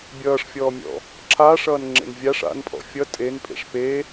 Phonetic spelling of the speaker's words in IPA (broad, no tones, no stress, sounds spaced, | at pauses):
bʲ ʌː ʂ fʲ ɔː mʲ ɔ̰ | ǁʰ aː ʂ ʌː n ŋ͡ǁ ḛ n vʲ a ʂ a̰ n pʼ ɔ̰ fʲ ʌ tʼ e n pʼ ḛ ʂ p e